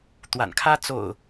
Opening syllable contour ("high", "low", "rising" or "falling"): low